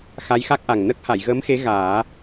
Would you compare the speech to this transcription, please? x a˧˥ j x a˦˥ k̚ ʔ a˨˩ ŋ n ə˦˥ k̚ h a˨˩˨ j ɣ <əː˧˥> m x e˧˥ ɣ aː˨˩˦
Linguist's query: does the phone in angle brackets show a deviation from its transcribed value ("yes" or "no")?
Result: no